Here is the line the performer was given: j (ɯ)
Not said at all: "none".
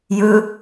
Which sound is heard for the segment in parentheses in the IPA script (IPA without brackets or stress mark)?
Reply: ɯ